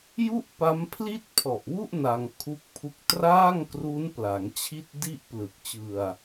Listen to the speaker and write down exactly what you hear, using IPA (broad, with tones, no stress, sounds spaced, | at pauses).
j u˥˩ ʔ p a˦˥ m pʰ l i˥˩ t̚ pʰ ɔ˨˩ ʔ w u˥˩ ʔ n a˧ ŋ kʰ u˦˥ k̚ pʰ u˦˥ k̚ t r aː˥˩ ŋ k r u˦˥ n p l a˩˦ ŋ t͡ɕʰ i˥˩ t̚ d i˥˩ ʔ p l ɯ˨˩ k̚ t͡ɕ ɯ˧ a̯